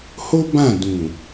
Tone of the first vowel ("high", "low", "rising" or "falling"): high